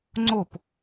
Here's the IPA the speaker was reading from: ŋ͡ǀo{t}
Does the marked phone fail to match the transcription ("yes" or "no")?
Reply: yes